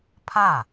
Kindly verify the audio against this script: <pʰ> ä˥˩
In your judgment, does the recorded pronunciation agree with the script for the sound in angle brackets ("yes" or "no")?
yes